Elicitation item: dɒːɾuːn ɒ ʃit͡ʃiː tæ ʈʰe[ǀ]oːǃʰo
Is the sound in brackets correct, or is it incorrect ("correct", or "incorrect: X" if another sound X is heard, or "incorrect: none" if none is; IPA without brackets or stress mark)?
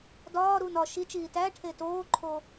incorrect: t